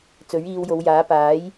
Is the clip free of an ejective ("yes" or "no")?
yes